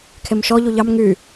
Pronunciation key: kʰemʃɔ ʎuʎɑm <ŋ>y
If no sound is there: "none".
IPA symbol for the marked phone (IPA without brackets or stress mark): ŋ